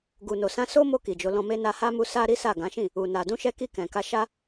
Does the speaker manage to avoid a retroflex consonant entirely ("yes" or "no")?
yes